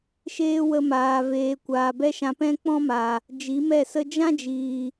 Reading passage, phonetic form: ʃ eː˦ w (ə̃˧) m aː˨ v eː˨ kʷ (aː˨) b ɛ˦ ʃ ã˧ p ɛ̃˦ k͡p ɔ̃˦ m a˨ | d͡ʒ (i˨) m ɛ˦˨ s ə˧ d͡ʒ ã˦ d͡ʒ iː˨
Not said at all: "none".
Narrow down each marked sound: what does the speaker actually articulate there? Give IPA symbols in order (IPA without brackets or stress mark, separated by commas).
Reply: ə˧, aː˨, i˨˦